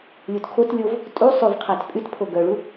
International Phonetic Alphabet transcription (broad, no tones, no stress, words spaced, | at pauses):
lʲutkʰotlʲov | tʼu sˤʉvqʰæt pʼytpʰo ɡœɭu